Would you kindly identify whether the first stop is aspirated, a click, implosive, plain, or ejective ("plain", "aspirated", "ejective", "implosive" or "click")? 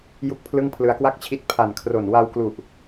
plain